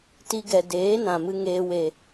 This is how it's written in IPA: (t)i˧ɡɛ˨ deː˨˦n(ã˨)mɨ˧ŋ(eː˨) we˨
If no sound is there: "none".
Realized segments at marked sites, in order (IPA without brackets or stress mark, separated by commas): t, ã˨, eː˧